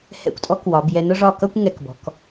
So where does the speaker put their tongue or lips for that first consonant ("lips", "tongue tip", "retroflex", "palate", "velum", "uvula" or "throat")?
throat